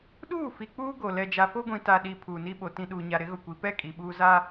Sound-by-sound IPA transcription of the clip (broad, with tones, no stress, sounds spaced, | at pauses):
ɗ uː˦˨ f i˨ k͡p uː˦ ɡ o˨ l ɛ˨ d͡ʒ a˨ f o˦ ɡʷ ĩ˨ t a˨ ɗ i˨ pʰ uː˨ n i˦ ɓ o˨ t ĩ˨ ɗ uː˨ ɲ a˨ ɾ ɪ˨˦ ɣ ʊ˨ kʷ i˨ p ɛ˦˨ kʼ i˨ ɓ uː˦ z aː˦